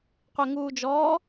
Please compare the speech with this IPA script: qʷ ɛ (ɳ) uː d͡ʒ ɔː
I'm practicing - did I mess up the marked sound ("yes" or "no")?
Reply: yes